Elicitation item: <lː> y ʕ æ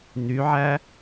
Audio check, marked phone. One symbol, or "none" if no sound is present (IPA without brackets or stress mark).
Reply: n̪